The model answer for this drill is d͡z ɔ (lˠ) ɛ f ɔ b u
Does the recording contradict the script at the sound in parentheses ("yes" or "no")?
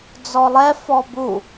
no